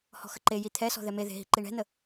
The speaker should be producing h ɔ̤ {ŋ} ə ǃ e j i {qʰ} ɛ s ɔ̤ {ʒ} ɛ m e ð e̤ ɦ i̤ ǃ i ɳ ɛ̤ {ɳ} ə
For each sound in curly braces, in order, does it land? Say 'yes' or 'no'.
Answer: no, no, no, no

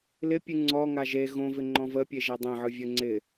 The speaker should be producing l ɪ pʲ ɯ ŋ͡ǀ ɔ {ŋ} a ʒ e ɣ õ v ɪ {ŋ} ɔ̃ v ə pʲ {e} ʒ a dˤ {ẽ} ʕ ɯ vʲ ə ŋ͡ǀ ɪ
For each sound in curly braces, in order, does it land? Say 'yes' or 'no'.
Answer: yes, no, yes, yes

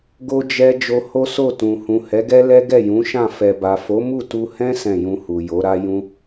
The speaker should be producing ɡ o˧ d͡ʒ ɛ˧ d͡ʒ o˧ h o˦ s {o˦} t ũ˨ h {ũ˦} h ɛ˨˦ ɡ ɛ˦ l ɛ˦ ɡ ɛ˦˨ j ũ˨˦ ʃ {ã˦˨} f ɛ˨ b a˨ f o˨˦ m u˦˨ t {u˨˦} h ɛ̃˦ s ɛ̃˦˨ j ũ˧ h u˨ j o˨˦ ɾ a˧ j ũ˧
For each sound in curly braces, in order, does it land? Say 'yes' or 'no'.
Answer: no, no, yes, no

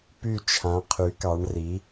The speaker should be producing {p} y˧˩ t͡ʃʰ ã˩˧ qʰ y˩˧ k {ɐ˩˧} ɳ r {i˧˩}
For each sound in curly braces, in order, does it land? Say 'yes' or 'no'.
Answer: yes, no, no

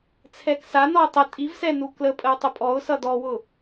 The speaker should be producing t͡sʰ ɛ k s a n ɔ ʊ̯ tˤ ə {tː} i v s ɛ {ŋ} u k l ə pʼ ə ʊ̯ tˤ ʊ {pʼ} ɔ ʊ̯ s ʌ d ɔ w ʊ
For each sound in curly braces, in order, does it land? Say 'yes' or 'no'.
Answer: no, no, yes

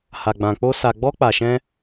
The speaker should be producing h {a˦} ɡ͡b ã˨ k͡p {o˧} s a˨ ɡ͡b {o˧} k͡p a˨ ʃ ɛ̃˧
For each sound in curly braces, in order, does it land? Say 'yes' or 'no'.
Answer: no, yes, no

